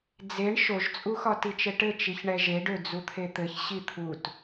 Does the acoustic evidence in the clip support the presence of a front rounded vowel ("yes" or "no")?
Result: yes